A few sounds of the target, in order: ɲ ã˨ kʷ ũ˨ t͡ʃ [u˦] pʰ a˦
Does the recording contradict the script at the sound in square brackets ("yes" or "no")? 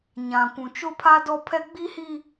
yes